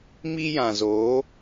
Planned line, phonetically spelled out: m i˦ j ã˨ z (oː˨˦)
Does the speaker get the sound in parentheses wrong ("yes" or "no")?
no